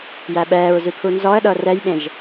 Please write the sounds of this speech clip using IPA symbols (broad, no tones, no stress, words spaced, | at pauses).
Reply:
jæɓɛːɹzʉ pʰunzɔə̯ɗɤ rɛjɓẽʒ